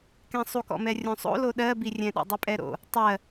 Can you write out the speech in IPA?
kɛ̃sˤukɔ̰mɛ rʲõsˤo̰lo ɗɜbirʲɛ̃ɗo̰ dˤypʼɛɾo̰ | tˤɜ

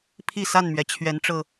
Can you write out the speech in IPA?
pʰi˥˨sa˥˨nmɥɛ˩ t͡ɕʰɥɛ˨˦nʈ͡ʂɤ˨˩

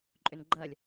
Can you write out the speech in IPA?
ǃʼʏnɡ͡ǃɐlʲ

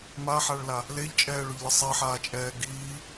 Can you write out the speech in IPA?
maħaɭla | leʎt͡ʃʼɛːɭʊʎlʲə sˤiħaːt͡ʃʼɛː ɡiː

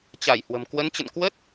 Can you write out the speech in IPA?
t͡ɕa˧˩j hwə̤˨˩m kwə˨˦nt͡ɕə̰˧˨n kwə˦˥t̚

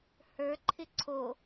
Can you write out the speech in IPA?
hə˞ǃʰɪ ǀʰo

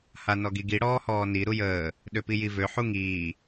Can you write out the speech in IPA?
hanɔɡiɡi ɽɔːhɔːni ɾujəː | ɗøpijivø ħuŋiː

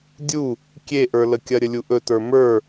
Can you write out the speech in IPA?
dʲu | kʲeʔə˞ləkʲɐ ɾʲəlʲuʔɵ tə˞mə˞

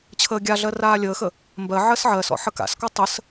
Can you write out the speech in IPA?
t͡ɕʰəːɡʲaɮɜ raːlʲəːxə | mbɜ ʕɜsʕɜsɔ̰ ħəka̰skɔ tˤəs

